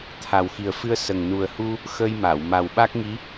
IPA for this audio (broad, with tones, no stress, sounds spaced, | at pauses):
t̪ʰ a˨˩ w x i˨˩ ə̯ f ɨ˧ ə̯ s ə˨˩ ŋ n u˨˩ ə̯ h u˧ | x ə˧ j m a˨˩˨ w m a˨˩ w ɓ a˦˥ k̚ ŋ i˧˥